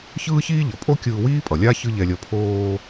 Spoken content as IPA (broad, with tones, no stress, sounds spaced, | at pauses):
ç ɯː˥ ç iː˥ ʎ ʌ˩ pʼ o˥ kʲ ɯː˧ w iː˥ pʼ ʌ˩ lʲ a˥ ç ɯ˥ ʎ ɛ˧ lʲ ʌ˧ pʰ oː˧